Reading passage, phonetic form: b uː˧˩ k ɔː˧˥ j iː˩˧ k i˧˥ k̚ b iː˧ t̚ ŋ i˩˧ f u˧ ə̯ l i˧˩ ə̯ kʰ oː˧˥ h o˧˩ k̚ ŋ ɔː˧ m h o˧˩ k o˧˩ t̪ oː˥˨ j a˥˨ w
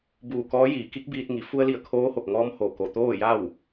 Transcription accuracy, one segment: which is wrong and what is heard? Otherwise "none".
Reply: none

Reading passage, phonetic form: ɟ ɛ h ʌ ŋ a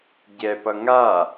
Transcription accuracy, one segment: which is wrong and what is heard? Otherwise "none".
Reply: h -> p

